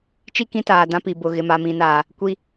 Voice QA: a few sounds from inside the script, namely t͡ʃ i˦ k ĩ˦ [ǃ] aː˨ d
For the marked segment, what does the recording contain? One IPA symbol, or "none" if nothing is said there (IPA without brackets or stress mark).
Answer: t